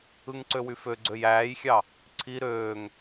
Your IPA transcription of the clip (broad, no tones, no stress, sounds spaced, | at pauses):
ɯ ŋ ǀ ø w y f ø ɡ͡ǀ ø j æː j xʲ ɑ | ǀʰ i ɾ øː ŋ